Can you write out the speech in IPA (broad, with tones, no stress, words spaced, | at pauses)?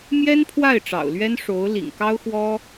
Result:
mjɛ˥npʰwa˥˩ɪ̯ ʈ͡ʂɑ̰˨˩ʊ̯lɥɛ˥nʂo˧˥ʊ̯ lḭ˨˩ŋkɑ˥ʊ̯xwɔ˥